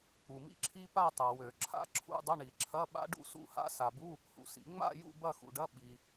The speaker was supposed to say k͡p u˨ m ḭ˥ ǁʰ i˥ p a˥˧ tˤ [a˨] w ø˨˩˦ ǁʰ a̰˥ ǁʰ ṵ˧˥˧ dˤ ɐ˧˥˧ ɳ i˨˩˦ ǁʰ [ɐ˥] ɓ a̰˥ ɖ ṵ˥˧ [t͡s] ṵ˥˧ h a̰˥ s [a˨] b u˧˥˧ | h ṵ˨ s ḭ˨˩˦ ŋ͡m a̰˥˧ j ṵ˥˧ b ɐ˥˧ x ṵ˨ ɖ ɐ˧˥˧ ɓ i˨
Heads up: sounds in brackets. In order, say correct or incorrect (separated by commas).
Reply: correct, incorrect, incorrect, correct